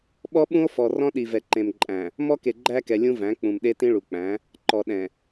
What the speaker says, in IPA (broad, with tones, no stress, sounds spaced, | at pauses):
ɓ ɔ˦ ɓ ũ˦ o̯ f ɔ˨ r ɔ̃˦ ɗ i˨ v ɛ˨ ǃ ẽ˨ m ǃʼ æ̃˨ | m ɔ˦ k e˨ ɡ͡ǃ æ˦ k ɛ˨ lʲ ũ˦ v æ̃˨˦ k͡p ũ˨ m ɗ e˦ t ĩ˦ ɭ u˨ k͡p æ̃˨˦ | ǃ ɔ˨ ɗ ɛ̃˨